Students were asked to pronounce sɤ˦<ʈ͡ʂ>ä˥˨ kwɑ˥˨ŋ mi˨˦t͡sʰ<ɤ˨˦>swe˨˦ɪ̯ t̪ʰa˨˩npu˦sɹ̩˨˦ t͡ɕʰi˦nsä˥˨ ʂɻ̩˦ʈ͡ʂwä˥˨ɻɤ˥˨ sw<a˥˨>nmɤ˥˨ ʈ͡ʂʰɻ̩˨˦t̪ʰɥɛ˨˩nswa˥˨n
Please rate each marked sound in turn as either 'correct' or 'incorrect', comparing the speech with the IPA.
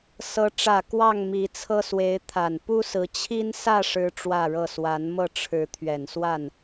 correct, incorrect: ɤ˦, incorrect: a˨˦

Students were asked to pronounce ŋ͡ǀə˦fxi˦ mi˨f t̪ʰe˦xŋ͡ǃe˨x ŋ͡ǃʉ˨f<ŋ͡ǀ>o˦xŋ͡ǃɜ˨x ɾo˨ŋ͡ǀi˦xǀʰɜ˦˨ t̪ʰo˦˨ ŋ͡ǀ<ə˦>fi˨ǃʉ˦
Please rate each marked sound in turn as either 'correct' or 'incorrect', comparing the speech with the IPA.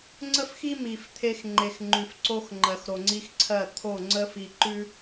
incorrect: ǀ, correct

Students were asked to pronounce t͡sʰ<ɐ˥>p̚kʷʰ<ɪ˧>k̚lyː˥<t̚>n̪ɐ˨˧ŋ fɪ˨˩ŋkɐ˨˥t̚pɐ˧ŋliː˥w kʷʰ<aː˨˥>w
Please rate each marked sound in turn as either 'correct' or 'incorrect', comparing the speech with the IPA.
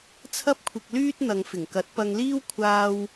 correct, correct, correct, incorrect: aː˥

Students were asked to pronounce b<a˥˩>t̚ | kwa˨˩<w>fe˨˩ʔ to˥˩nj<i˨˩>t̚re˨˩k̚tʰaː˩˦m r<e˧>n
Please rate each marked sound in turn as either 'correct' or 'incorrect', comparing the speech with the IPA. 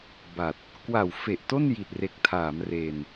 incorrect: a˨˩, correct, correct, correct

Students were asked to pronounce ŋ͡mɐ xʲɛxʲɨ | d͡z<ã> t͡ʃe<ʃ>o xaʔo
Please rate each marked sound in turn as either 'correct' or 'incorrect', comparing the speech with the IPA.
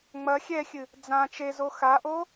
correct, incorrect: z

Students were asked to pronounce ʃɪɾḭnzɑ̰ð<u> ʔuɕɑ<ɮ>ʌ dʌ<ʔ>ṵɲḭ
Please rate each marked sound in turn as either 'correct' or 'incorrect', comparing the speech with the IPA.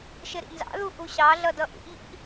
correct, correct, correct

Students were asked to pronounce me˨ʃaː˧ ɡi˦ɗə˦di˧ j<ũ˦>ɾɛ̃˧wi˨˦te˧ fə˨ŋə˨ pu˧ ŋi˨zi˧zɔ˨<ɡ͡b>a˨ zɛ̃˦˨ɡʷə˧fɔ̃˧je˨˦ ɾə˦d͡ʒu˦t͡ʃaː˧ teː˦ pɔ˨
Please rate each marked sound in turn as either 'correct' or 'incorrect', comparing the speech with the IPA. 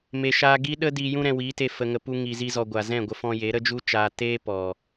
correct, incorrect: ɡʷ

